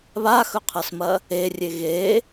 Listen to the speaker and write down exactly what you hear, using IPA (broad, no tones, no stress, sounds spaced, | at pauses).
β a x ɵ qʰ ɐ s m ɐ | e rʲ e ɣ e